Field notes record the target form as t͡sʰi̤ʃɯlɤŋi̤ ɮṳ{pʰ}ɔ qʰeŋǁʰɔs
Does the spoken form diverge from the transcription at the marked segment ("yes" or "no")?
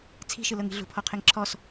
no